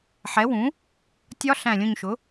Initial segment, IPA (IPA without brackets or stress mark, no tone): ħ